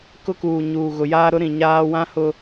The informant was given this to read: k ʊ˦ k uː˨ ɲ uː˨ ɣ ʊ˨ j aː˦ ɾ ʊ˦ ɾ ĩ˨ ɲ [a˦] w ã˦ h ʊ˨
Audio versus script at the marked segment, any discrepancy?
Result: yes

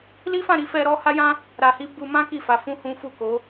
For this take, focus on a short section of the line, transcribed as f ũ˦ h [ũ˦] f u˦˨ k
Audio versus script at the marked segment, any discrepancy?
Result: no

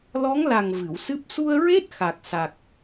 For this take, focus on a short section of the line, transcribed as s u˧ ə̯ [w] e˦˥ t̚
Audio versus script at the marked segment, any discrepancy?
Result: yes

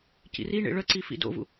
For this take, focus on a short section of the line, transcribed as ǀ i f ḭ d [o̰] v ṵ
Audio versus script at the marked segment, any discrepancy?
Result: no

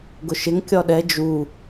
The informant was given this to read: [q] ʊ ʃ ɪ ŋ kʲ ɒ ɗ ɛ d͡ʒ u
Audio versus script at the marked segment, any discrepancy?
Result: yes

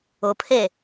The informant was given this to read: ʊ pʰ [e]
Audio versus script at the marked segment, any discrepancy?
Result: no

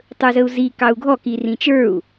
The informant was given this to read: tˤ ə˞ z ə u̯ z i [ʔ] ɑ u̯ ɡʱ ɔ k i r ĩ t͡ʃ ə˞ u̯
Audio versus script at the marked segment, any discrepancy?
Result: yes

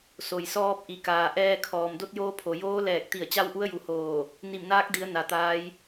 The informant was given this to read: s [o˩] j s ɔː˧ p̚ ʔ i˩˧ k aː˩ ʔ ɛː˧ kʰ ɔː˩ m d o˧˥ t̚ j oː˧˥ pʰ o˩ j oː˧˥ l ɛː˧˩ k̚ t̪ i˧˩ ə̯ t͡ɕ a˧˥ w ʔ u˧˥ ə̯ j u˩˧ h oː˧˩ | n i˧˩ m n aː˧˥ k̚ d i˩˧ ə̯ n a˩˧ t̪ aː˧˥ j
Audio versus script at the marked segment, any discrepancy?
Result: no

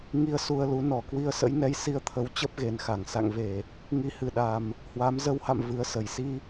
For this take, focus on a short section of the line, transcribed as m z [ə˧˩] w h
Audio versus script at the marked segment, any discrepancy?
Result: yes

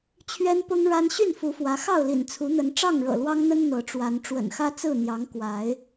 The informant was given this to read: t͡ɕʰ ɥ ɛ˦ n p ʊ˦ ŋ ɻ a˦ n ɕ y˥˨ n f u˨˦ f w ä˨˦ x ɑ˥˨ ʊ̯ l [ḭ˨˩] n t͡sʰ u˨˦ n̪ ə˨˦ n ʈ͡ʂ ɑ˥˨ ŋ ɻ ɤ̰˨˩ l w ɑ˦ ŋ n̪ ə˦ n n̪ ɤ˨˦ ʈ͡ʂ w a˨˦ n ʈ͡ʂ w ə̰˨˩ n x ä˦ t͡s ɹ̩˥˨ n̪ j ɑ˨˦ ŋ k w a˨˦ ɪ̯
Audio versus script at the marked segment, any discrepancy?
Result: no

